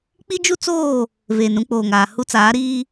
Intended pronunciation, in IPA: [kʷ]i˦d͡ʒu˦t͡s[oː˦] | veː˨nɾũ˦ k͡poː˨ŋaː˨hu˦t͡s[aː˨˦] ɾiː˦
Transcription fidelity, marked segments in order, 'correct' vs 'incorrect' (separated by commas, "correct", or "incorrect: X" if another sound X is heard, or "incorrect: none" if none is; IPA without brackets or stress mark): incorrect: k͡p, incorrect: oː˦˨, correct